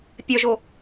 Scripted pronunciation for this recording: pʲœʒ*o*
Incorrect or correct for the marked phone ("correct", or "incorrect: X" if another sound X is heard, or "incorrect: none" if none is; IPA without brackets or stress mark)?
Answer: correct